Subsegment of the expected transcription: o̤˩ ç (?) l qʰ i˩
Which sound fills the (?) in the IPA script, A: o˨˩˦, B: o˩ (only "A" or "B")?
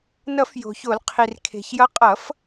A